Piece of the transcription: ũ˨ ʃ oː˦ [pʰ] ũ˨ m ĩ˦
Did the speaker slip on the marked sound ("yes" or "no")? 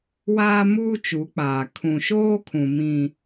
yes